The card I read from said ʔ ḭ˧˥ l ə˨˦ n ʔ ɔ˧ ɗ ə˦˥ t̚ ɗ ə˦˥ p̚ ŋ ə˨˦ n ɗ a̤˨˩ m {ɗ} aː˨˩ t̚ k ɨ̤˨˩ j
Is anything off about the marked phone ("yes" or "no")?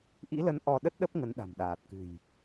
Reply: no